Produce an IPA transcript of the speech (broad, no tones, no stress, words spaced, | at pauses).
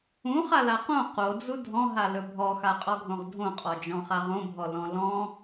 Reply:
ũχala qõ qod͡zu dʱɔ̃ɦalɵ bʱɔxaqʼɔɡʱõʁ dʱõqʼɔd͡ʒɔ̃χa ʁõbʱɔlɔ̃ lɔ̃